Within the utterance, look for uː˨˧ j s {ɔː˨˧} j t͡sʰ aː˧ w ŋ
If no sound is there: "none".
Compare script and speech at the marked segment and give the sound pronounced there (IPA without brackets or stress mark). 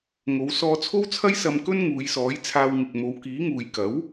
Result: ɔː˨˥